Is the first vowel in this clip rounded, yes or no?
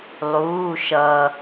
yes